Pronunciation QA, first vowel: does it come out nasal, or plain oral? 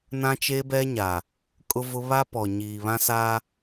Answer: nasal